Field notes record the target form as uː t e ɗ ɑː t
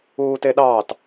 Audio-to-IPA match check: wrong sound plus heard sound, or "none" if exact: none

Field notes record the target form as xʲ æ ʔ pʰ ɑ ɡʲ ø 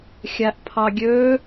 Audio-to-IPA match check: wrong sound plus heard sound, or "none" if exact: none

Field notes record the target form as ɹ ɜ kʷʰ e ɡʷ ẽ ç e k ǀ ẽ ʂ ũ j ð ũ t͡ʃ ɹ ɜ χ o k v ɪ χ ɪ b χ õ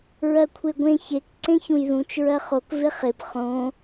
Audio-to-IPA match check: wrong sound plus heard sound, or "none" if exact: ʂ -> ç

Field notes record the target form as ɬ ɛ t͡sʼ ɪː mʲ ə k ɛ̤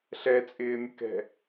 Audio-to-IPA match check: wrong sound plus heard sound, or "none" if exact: none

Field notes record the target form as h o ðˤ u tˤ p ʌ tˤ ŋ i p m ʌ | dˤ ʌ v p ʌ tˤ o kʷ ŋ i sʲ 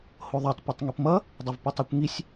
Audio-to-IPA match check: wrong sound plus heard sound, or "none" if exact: u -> ɯ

